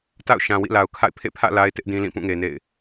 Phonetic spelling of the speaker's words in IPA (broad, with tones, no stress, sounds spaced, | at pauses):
t a̰˦˨ ʊ̯ ʃ ã˨ w ḭ˦˨ l a˨ ʊ̯ kʰ a̰˦˨ ɪ̯ pʰ ḛ˦˨ pʰ ä̰˦˨ l a˦ ɪ̯ t ɪ˦ ʔ d ĩ˦ l ĩ˦˨ p ũ˦˨ ŋ e˨ n ḛ˦˨ ɪ̯